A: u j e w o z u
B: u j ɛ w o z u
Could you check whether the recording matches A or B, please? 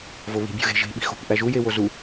A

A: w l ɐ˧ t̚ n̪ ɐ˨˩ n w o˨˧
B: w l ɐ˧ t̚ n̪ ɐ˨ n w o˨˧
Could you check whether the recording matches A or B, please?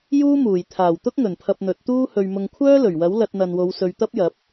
B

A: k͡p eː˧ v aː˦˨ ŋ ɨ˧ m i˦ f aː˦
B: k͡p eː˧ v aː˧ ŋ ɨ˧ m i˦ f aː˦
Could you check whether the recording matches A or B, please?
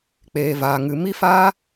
B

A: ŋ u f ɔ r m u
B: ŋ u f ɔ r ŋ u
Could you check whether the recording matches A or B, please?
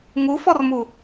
A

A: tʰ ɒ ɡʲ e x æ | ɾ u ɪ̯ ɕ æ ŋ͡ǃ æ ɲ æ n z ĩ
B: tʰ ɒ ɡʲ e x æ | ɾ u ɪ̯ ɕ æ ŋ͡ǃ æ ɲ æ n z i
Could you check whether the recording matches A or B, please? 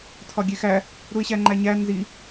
B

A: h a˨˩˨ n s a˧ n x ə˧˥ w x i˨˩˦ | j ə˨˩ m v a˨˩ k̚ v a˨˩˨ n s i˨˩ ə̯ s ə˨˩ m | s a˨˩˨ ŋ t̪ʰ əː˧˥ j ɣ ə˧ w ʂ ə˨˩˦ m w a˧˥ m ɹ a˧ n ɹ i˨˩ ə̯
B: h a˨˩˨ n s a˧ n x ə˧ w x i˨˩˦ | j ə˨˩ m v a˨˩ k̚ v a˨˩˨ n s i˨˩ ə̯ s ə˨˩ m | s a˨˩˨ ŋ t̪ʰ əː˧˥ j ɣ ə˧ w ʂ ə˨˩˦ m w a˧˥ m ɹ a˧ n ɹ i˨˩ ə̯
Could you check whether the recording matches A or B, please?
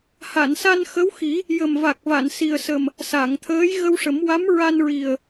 A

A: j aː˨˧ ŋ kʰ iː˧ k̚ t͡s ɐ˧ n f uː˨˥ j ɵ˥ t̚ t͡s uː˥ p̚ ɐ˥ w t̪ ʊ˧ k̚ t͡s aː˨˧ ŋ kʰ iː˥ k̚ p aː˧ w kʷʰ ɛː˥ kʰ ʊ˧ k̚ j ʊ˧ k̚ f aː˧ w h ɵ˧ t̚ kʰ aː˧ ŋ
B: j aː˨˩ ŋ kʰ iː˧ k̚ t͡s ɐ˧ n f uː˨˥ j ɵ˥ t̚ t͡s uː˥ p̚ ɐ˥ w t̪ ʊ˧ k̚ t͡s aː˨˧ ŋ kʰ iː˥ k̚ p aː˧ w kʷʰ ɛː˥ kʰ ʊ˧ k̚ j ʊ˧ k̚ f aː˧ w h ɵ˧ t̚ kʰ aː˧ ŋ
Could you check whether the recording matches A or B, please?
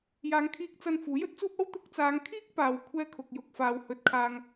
A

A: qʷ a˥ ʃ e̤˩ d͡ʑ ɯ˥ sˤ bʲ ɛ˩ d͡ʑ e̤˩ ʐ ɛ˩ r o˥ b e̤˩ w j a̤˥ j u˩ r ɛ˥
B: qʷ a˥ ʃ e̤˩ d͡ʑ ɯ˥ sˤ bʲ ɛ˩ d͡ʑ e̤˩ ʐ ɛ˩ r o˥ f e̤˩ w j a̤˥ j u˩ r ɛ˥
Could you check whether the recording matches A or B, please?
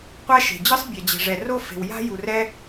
B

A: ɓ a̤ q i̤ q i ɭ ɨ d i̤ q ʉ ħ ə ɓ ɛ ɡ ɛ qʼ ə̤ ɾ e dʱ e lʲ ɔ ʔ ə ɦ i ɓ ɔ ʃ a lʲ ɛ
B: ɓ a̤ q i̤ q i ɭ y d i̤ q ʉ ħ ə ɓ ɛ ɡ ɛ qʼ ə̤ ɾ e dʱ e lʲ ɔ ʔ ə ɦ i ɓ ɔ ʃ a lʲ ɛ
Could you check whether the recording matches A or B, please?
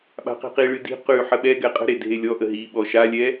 A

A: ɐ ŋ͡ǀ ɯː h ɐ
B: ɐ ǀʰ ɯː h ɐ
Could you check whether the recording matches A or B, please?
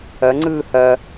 A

